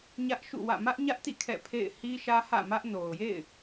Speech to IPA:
ɲ ä˦ ʔ ʃ ṵ˦˨ w ä̰˦˨ m ä˦ ʔ ɲ ä˦ ʔ t ḭ˦˨ kʰ ɛ̰˦˨ pʰ ḛ˦˨ ɪ̯ h i˦ ʃ ä˦ h ä̰˦˨ m ä˦ ʔ n o˨ ʊ̯ j ḛ˦˨ ɪ̯

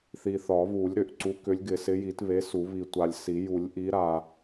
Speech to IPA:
θ i˨ θ ɒ˨˩˦ β u˨˩˦ lʲ ɾ ʏ˨ ʔ ǀ u˨˥ k ʏ˨˥ lʲ ɡ ɪ˨˩˦ s ɪ˨˥ j i˨˩˦ t β e˨˥ s u˨˩˦ β i˨ tʷ a˨ lʲ s i˨˩˦ j u˨˩˦ lʲ ʔ i˨˥ ɾ a˨

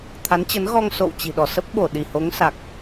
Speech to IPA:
t̪ʰ a˨˦ n t͡ɕ ə˨˦ n ɣ ɔ˧ ŋ s o̰˧˨ w t͡ɕ i̤˨˩ ɗ ɔ˧˩ s ə˦˥ p̚ ɓ o˧˩ ɗ i˧˩ h o˨˦ ŋ s a˨˩ k̚

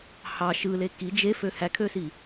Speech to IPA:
h ɑ ʃ ɯ l e k i d͡ʒ e f ø h æ kʰ ø s i

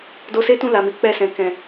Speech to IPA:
d o˧ s e˦ t ũ˦˨ l a˨ m i˨˦ k͡p ɛ˧ s ɛ̃˨ k ɛ̃˨

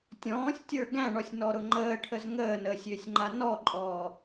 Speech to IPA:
tʲ ɔ̃ː sʲ tʲ ə˞ ɡ æ̃ ɳ ɔ sʲ n ɔ ɾ ʊ ŋ͡ǃ əː ʈʰ ə z ŋ əː n əː sʲ ʏː sʲ ŋ͡ǃ a n ɔ ǃʼ ɔː

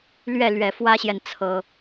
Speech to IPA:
l ɥ ɛ˥˨ l ɥ ɛ˨˩ f w ä˦ ɕ j ɛ˨ n t͡sʰ ɤ˨˩

